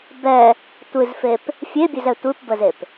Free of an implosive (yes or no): yes